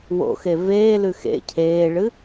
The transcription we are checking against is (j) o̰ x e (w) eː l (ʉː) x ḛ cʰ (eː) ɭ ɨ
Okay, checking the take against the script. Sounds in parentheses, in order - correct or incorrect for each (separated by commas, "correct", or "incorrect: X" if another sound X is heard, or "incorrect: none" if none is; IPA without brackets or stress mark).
incorrect: w, incorrect: v, incorrect: ʉ, correct